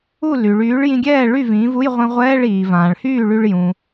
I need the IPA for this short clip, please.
u˥˩ l y˩ ɭ yː˩˥ ɭ j ĩ˧ ɡʲ ɛː˥˩ ɭ y˥˩ v ĩː˩˥ v u˧˥˧ j ʁʷ ĩ˧ ʁʷ ɛː˧˥˧ ɭ iː˩ v ãː˩ ɭ h yː˥˩ ɭ y˧ ɭ j ũ˩

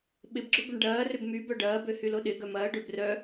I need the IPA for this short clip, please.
ɓ ɪ b ɡ͡ǁ ʊ b ʏ ɳ ɖ ɐː r ʏ b m y b œ ɖ ɐː b ø h y l o ɗ ɪ ɡ œ m ɐː ɖ ø b r œ

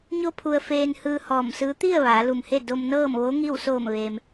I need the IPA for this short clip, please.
ɲ o˧ pʰ u˧ ə̯ f eː˧ n h ɯː˧ h ɔː˧˩ m s ɯː˧˥ t̪ i˥˨ ə̯ ʋ aː˩˧ l u˧˩ m h e˥˨ d o˧ m n ɤː˥˨ m ʋ o˧˥ ŋ i˥˨ w s oː˧˩ m ʋ eː˩ m

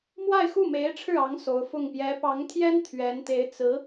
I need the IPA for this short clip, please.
m w a˥˧ ɪ̯ x u˥˩ m e˧˥ ɪ̯ ʈ͡ʂʰ ɻ̩˥˩ ɑ˧˥ ŋ s o˧˥ ʊ̯ f ʊ˥˩ ŋ p j ɛ˧˥ p ɑ˧˥ ŋ t̪ʰ j ɛ˥ n t̪ʰ ɥ ɛ˧˥ n t̪ e˧˥ ɪ̯ t͡s ɹ̩˧˥

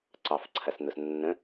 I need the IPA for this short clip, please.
ǀ ɑ f ǀʰ ɐ s n ʊ s nː ə̃

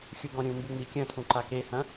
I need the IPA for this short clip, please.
xʲ u ɡ ɔ̃ ɾʲ ũ m b u ŋ͡m i kʲ ɐ̃ tʰ ũ ǃ a k e h ɐ̃

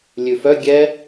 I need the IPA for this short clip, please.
lʲ ʉ f œ ɡʲ ɛ

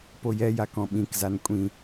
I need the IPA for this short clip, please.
p o j ɛ j a k ɔ̃ ɓ ĩ k z a n kʷʼ ĩ

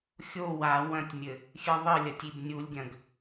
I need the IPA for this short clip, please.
xʲ o w a w ɐ̃ tʲ mʲ ɘ | xʲ ɨ ðˤ ɨ lʲ ɐ tʲ i b nʲ u lʲ ɡʲ ɐ̃ ɡ

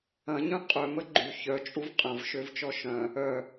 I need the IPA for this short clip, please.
ɐ̃ ɲ œ̃ qʼ œ m ə ɡ͡ǃ y ç œ t͡ʃʼ u v qʼ ɐ̃ v ʃ ø v t͡ʃ ɔ ʃ œ̃ | œ

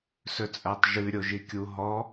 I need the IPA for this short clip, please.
s ɵ t͡sʼ æ tˤ ʒ ʉ ɾʲ o ʒ i kʲ u ɦ ɔ

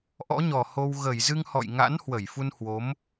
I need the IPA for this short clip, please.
ʔ ɔ̰˧˥ ɲ ɔ˨˩ h o˧ w ɣ ə˧˩ j z ɨ˧ ŋ h ɔ̰˧˨ j ŋ a̰˧˥ n h w ə˧˩ j f u˧ n h w o˨˦ m

